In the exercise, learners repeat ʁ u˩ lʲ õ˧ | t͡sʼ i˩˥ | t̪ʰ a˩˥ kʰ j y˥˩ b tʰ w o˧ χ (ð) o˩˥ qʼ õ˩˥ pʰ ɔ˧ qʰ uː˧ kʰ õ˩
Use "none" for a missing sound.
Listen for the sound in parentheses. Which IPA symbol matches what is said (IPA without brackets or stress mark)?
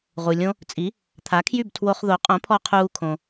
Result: ð